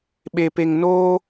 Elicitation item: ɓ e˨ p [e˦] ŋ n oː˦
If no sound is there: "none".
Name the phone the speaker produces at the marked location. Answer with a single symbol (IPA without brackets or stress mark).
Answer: e˨